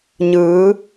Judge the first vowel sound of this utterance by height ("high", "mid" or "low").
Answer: high